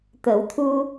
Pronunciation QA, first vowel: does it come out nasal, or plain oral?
oral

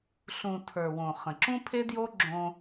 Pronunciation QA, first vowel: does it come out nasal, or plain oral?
nasal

